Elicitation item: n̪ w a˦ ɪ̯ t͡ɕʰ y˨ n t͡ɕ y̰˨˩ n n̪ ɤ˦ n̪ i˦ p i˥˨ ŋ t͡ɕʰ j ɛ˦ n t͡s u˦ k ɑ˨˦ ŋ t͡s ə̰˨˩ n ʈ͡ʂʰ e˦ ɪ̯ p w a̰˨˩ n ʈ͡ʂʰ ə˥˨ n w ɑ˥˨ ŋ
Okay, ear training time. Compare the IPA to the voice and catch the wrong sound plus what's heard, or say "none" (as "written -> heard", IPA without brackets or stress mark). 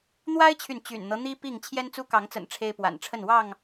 none